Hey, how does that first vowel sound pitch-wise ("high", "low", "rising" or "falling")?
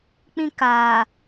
high